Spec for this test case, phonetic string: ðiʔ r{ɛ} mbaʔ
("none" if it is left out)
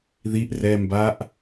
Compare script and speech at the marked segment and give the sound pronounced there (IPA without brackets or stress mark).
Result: ɛ